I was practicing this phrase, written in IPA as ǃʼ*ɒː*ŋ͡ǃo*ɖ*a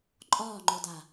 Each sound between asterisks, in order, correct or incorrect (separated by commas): correct, incorrect